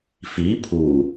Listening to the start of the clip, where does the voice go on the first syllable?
rising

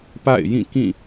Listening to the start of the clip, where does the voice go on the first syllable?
falling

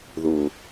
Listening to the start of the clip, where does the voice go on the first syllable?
low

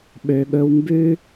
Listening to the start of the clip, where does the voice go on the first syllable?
low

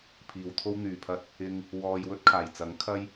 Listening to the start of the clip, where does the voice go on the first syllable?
low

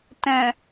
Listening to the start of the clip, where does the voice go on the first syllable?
low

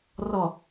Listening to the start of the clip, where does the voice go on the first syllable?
low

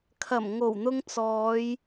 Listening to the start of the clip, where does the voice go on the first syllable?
low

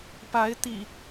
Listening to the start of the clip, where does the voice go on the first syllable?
rising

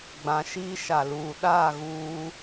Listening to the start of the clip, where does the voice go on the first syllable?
rising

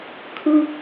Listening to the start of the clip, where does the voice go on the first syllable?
high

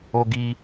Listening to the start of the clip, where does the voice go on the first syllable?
high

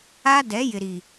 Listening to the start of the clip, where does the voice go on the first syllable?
high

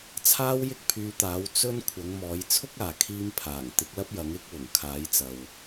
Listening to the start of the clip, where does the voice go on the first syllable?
high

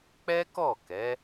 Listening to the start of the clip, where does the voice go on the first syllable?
high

